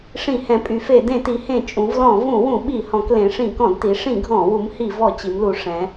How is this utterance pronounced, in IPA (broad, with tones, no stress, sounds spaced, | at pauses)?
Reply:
ʂ ĩ˧˩˧ h ɛ̃˩˧ pʼ y˩˧ f e˧˩˧ d ẽ˧˩˧ t i˩˧ h ẽ˧˩˧ t͡ʃʼ ũ˩˧ v l ɔ̃˧˩˧ v ũ˧˩˧ w ũ˧˩˧ ɓ i˧˩˧ h ɔ̃˩˧ k l ẽ˩˧ ʂ ĩ˧˩˧ k ɔ̃˧˩˧ d t i˩˧ ʂ ĩ˧˩˧ ɡʱ ɔ̃˧˩˧ w u˩˧ m h i˧˩˧ v ɔ˧˩˧ t͡ɕ i˩˧ m l u˩˧ ʂ ɛ̃˩˧